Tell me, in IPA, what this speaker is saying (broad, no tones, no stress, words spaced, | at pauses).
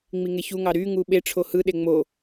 ŋ͡miŋeçuŋɑ ɾyŋu ɓe ʈ͡ʂʰohɯɗe ŋ͡mo